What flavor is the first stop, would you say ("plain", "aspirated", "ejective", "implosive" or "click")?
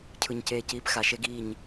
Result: aspirated